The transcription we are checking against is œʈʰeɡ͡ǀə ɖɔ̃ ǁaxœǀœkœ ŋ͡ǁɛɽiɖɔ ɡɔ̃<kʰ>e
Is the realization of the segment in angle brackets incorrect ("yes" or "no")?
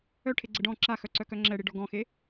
yes